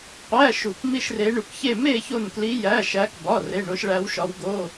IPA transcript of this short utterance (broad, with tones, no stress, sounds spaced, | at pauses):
qʷ æ˧˥˧ ʃ u˧˩ k m i˥˧ ʃ r e˦˥ ɳ u˧ k ç e˥˧ m e˥˧ ç o˥˧ n k l i˦˥ j æ˧˥˧ ʃ æ˦˥ k b ɒ˧˥˧ r e˧˥˧ ɳ o˦˥ ʃ ɭ æ˦˥ w ʃ ɒ˦˥ w ɡ o˧˥˧